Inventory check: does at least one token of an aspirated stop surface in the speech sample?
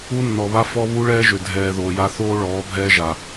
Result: no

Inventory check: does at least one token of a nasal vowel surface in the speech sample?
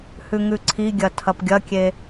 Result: no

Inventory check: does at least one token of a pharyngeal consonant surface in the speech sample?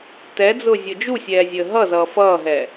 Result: no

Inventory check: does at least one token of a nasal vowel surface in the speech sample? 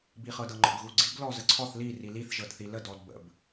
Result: no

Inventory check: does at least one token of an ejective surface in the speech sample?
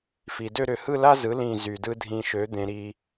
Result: no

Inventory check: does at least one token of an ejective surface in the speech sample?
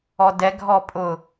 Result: yes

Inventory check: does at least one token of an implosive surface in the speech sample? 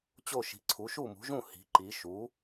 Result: no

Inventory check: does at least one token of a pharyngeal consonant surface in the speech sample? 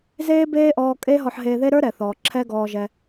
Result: yes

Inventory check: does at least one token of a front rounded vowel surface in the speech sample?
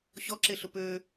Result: yes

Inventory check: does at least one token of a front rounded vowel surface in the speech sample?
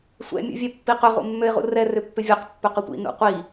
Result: yes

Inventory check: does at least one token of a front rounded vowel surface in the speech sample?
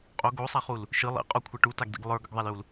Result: no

